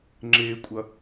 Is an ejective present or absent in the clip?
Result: present